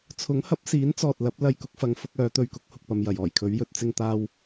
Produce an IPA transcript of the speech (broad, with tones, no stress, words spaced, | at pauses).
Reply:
t͡sʰʊ˨˥ŋhɐ˨˥p̚siː˨˥nt͡sɔː˨t̚ lɐ˨˥p̚ lɐ˧jkʊ˨˥k̚fɐ˨˧ŋ fʊ˧k̚œː˨˧t̪ɵ˧ɥkʊ˨˥k̚ hʊ˧k̚pɐ˧mjɐ˨j ɔː˨˩jkʰɵ˨˥ɥjɵ˨˥t̚ t͡sɪ˧ŋt̪aː˧w